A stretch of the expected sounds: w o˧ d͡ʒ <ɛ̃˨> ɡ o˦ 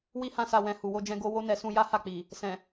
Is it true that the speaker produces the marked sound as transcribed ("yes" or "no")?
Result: no